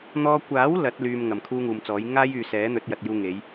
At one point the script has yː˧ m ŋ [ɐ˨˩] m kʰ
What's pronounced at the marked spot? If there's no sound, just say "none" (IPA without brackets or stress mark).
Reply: ɐ˨˩